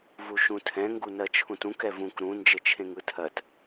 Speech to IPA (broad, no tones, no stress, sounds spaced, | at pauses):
v u ʃ ũ tʰ ɛ̃ ŋ ɡ u n ɜ t͡ʃʰ ũ t ũ k ɛ v ũ k ɾ ũ n d͡ʒ ɘ t͡ʃʰ ẽ ŋ ɯ tʰ ɜ t